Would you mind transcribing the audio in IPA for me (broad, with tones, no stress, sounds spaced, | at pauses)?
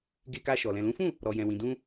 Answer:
ɡ e˧ k a˧ ʃ ɔ˨ l ɛ̃˨ l ũ˨˦ f ũ˦˨ | ɾ ɔ˨ j ɛ̃˨ w ĩ˨ d ũ˧